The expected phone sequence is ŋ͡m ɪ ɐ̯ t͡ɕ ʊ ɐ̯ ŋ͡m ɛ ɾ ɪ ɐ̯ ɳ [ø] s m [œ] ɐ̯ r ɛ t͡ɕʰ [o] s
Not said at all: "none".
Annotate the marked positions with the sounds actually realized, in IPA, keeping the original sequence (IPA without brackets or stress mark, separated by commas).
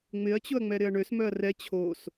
ø, œ, o